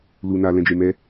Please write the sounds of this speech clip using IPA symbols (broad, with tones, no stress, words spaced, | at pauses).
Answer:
lu˨na˨ lɛ̃˨d͡ʒe˨ mɛ˧